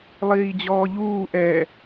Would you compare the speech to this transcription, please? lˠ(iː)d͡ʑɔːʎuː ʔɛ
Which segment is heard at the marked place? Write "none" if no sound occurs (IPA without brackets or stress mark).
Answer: iː